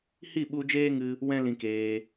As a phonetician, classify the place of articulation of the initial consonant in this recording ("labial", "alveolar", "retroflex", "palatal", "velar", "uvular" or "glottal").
glottal